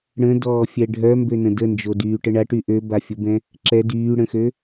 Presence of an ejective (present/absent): absent